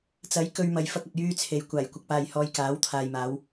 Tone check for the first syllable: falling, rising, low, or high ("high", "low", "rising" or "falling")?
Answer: rising